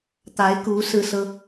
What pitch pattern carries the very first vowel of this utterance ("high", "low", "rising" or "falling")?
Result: rising